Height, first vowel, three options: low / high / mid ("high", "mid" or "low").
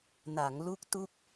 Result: low